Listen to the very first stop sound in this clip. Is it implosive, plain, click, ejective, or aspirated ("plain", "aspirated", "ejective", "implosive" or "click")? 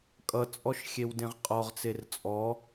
ejective